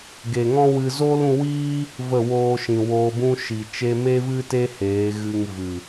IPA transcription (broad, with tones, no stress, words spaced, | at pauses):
ɡe˨ŋɔ̃˦wɨ˧ zoː˦lũ˧wiː˦ | və˦˨woː˧ ʃĩ˨ woː˧bũ˦ ʃi˨ t͡ʃe˧me˦vɨ˦te˦ heː˨˦ɣɨ˧ŋ vɨ˨